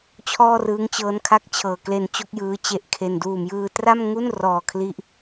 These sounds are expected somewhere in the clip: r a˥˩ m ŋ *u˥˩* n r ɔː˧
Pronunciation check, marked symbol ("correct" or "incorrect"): correct